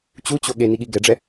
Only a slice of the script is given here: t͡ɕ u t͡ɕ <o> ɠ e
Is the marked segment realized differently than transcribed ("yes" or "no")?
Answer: no